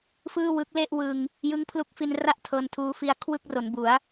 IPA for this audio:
f ɯː˥˩ w ɯ˦˥ k̚ l e˥˩ ʔ w ɯ˧ ŋ | j ɯ˦˥ ŋ pʰ l u˦˥ k̚ f i˧ n r a˥˩ ʔ tʰ ɤː˧ n tʰ uː˧ f i˧ a̯ kʰ w ɯ˥˩ k̚ r o˩˦ n b u˩˦ a̯

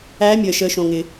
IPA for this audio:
æː˧˥ mʲ əː˩ ʃ əː˩˧ ʃ õ˩ ŋ ɪ˩

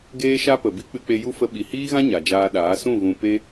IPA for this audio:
ɡ eː˦ ʃ a˦ p ə˨ b i˦ k͡p ɨ˧ k͡p e˧ j u˦ f ə˧ ɓ i˨ h iː˦ ɣ ã˦ ɲ a˨ d͡ʒ aː˧ ɗ aː˨˦ s ũ˦˨ ɣ ũ˧ p e˦

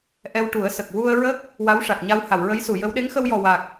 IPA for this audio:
ʔ ɛ˧ w ʈ u˨˩˦ ə̯ s ə˨˩ k̚ w u˧ ə̯ ɹ ə˦˥ k̚ | w a˧˥ w ʂ a˨˩ k̚ ɲ a˧ w h a˨˩˨ w ɹ ə˧˥ j s u˨˩˨ j ə˧˥ w ɗ e˧˥ ŋ x ə˧ w j ɔ˨˩ w a˨˩ k̚

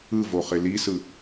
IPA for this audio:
ɯ v o χ ɪ l i s ɯ

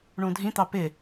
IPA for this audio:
ɳ ũ dʱ ĩ t̪ ɑ p ɪ

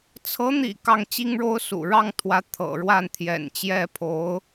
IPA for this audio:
t͡sʰ ɤ˧˥ n̪ ḭ˨˩ k ɑ˥˩ ŋ t͡ɕ i˥ ŋ ɻ o˥ ʊ̯ s ṵ˨˩ ɻ ɑ˥˩ ŋ t̪ʰ w ä˧˥ t̪ʰ ɤ̰˨˩ ɻ w a˥˩ n t̪ʰ j ɛ̰˨˩ n t͡ɕ j ɛ˥˩ pʰ o˧˥ ʊ̯

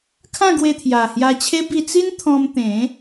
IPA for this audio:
kʰ ã˥˧ ɡ w e˧ t̪ʰ j a˨˩ h j a˧ t͡ɕʰ e˦ b i˧ t͡s i˦ n t̪ʰ ɔ̃˧ m t̪ ẽ˨˦

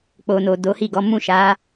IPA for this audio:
k͡p o˨ n o˨ d o˨˦ h i˦˨ ɡ ɔ˨˦ m ũ˦˨ ʃ a˨˦

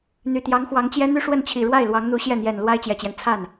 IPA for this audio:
n̪ y˨˩ t̪ j ɑ˧˥ ŋ x w ɑ˧˥ ŋ t͡ɕ j ɛ˥ n̪ y˥˧ ʂ w ə˥˩ n t͡ɕʰ i˨˩ ɻ w a˥˩ ɪ̯ l w ɑ˧˥ ŋ n̪ u˧˥ ɕ j ɛ˥˩ n̪ j ɛ˨˩ n l w a˥ ɪ̯ t͡ɕ j ɛ˨˩ t͡ɕ j ɛ˦ n t͡sʰ a˥˩ n

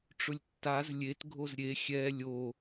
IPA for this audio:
ʈ͡ʂ ʊ lʲ tː a z lʲ e t ɡʱ o z ɾʲ e xʲ ɛ lʲ o

